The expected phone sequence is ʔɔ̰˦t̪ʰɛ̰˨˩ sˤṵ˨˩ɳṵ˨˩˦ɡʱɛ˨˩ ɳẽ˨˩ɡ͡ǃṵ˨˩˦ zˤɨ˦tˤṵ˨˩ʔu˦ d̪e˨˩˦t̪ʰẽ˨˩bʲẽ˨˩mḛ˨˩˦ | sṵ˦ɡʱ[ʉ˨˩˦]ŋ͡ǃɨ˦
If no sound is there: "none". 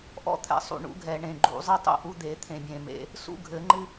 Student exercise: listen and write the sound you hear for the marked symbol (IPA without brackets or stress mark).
ɘ˨˩˦